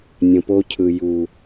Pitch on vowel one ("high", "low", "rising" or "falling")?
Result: low